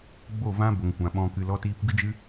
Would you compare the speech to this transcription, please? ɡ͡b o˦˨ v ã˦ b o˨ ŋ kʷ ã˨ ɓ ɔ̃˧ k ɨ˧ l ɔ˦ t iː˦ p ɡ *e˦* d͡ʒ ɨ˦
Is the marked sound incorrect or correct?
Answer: incorrect: ɨ˦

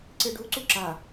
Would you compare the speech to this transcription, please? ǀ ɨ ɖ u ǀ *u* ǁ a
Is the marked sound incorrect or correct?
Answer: correct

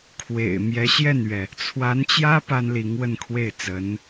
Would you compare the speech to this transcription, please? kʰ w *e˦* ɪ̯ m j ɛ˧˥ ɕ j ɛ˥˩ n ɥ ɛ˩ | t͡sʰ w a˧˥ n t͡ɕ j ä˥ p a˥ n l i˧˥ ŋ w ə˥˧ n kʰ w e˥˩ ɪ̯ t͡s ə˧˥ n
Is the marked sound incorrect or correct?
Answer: incorrect: ḛ˨˩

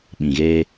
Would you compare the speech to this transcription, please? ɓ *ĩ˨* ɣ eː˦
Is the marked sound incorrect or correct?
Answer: correct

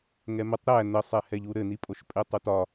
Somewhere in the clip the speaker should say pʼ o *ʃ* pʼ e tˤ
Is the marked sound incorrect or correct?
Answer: correct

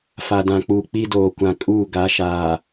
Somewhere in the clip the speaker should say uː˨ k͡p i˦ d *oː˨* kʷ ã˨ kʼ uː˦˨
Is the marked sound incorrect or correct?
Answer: correct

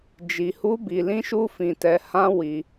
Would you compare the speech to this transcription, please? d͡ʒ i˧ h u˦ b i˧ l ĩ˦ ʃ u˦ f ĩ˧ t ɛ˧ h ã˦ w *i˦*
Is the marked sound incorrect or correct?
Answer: incorrect: i˧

